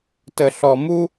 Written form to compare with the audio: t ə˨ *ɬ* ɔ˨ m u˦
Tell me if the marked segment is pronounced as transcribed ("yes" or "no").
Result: yes